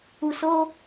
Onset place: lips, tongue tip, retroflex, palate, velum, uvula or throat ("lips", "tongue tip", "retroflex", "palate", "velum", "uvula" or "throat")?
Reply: tongue tip